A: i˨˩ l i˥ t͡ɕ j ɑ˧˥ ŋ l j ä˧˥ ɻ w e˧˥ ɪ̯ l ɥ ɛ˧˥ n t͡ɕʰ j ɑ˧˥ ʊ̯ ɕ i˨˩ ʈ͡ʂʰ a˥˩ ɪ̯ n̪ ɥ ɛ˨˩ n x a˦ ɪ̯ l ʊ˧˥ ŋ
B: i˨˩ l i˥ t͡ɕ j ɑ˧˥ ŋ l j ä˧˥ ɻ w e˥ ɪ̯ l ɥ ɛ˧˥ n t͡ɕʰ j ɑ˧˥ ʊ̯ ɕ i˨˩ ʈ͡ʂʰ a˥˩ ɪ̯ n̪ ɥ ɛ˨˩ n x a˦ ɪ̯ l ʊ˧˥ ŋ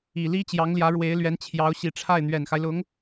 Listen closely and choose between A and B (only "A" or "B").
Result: A